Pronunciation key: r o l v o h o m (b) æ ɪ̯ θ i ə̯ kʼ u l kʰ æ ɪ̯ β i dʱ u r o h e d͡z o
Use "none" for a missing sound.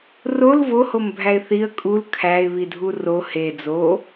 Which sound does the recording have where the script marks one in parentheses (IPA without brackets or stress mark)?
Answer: bʱ